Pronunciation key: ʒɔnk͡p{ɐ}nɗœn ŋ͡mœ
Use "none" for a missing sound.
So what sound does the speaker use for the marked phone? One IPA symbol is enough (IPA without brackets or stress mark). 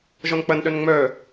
ɐ